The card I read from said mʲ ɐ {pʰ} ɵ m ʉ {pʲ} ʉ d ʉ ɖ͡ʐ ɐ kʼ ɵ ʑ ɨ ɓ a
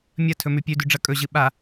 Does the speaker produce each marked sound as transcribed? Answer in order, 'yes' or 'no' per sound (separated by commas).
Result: no, yes